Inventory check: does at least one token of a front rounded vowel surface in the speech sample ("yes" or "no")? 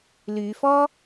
yes